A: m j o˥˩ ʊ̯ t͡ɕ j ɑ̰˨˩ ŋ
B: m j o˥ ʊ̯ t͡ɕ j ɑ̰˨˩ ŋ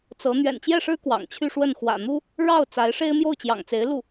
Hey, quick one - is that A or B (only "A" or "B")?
A